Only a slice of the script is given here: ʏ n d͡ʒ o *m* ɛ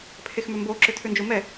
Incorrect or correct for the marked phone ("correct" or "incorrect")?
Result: correct